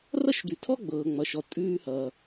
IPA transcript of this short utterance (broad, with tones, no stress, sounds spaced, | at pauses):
r ʌ˥ ʃ d̪ ʉ˨ tʰ ɔ˥ ɡ͡b ɤː˩ ŋ͡m ʌ˩ ʃ ɔ˩ tʼ ʉː˥ h ʌː˩